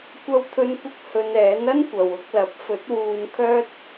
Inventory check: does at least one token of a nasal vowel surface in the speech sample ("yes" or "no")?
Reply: no